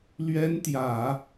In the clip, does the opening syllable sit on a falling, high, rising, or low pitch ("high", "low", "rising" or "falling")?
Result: high